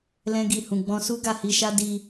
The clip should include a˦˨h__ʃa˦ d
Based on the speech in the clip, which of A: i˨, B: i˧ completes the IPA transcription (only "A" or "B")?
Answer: B